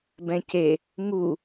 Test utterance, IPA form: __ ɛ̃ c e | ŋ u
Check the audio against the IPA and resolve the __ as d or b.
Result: b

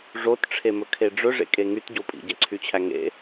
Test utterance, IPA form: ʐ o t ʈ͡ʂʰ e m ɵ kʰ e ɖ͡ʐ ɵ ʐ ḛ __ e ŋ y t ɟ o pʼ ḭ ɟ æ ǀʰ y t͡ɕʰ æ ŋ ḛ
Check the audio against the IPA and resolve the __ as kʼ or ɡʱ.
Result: kʼ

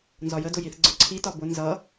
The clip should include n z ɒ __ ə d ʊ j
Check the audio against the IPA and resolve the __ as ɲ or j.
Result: j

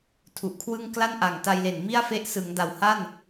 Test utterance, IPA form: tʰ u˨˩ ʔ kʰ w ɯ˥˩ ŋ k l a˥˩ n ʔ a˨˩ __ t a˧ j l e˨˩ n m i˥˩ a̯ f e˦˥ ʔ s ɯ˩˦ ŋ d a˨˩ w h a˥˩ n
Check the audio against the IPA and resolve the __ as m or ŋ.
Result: ŋ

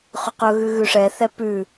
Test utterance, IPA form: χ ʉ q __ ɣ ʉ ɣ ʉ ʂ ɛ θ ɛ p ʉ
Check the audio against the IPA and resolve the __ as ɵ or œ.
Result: ɵ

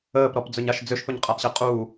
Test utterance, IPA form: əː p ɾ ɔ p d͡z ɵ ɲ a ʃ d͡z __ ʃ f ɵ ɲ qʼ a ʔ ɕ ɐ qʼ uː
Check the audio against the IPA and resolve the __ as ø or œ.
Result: ø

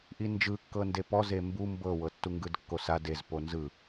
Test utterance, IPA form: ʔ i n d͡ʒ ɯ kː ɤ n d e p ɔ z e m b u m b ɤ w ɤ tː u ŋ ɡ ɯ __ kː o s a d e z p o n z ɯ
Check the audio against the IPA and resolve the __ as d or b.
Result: d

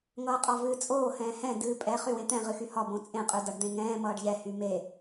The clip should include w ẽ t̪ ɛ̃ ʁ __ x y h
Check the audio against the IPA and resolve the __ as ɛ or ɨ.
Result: ɨ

